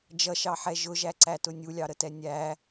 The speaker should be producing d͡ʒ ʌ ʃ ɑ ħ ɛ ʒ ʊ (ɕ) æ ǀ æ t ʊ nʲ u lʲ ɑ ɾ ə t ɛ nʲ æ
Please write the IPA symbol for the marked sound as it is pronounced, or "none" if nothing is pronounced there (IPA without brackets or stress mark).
ʒ